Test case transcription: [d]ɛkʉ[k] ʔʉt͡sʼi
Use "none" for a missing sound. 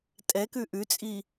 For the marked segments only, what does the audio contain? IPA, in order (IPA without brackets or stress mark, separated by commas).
tʼ, none